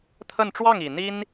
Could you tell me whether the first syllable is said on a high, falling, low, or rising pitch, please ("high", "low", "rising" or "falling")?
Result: falling